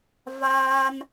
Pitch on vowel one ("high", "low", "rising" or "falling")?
high